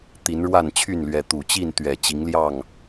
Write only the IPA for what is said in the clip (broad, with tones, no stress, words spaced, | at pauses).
t̪i˨˦nɻwa˥˨nt͡ɕʰy˥˨nlɥɛ˨˦ t̪u˨˩t͡ɕi˥˨n t̪ɥɛ˨˩ t͡ɕi˨˦ŋljɑ˥˨ŋ